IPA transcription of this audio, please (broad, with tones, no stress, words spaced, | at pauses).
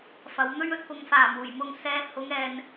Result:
fɐ˨˧wn̪ɵ˥ɥ ɵ˧t̚fʊ˨ŋ faː˨˩muː˨˩jmʊ˨ŋ sɛː˨˧ hʊ˨˧ŋɛː˨n